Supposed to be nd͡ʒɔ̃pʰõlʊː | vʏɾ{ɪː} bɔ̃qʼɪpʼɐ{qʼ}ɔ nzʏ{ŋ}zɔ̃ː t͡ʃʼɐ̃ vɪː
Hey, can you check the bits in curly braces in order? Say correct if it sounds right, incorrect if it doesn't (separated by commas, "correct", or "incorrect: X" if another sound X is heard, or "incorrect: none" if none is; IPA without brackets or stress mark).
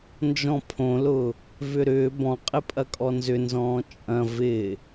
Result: incorrect: ʏː, incorrect: kʼ, incorrect: n